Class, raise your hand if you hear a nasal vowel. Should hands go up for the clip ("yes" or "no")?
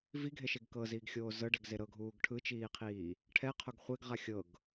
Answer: no